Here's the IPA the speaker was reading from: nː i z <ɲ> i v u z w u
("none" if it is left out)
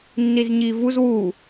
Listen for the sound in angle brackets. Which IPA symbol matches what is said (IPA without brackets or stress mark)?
ɲ